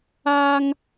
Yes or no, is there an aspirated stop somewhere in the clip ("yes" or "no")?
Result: no